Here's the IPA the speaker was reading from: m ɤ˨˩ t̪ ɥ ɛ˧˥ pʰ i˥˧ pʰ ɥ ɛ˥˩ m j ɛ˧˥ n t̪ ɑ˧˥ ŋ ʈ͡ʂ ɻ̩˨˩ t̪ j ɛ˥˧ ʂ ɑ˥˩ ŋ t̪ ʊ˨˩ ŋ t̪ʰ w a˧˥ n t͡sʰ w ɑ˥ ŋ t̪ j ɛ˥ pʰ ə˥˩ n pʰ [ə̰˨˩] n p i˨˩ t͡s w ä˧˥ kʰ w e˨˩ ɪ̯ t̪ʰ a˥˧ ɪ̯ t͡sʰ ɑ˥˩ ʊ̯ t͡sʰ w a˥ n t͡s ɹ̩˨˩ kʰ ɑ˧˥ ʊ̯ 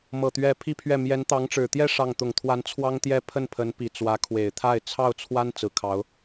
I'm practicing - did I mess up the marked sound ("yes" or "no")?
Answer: yes